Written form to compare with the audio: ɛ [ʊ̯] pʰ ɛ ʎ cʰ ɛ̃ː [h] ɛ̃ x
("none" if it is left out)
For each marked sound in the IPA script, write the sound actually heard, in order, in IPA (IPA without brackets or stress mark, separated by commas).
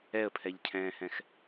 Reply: ə̯, h